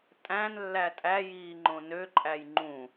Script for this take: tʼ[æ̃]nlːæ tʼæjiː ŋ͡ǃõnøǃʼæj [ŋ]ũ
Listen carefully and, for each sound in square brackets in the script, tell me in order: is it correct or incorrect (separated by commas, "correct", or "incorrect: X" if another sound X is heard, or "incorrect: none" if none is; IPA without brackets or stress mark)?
correct, incorrect: ŋ͡ǃ